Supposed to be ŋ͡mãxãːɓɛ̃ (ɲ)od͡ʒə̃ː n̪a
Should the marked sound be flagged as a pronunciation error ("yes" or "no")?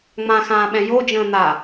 yes